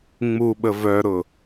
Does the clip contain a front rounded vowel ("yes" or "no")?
yes